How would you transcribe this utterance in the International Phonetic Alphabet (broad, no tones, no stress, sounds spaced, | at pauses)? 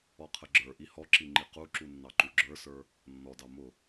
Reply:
ɔ qʰ ə ɡ͡ǁ ə˞ ʔ i h ɔ ǁ i ŋ͡ǃ i q u ǁ u nː ɑ ǃ u ɡ͡ǁ ə˞ s ə˞ | nː ɔ d ɑ m ʊ